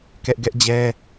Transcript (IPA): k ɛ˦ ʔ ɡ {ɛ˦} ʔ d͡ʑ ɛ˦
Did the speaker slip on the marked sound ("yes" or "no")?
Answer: no